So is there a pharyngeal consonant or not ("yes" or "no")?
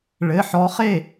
yes